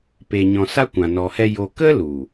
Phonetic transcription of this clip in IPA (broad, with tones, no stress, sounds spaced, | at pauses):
p e˨ ɲ ɔ̃˨ s a˦ kʷ ã˨ n ɔ˨ h ɛ˧ j o˧ k ə˦ l u˨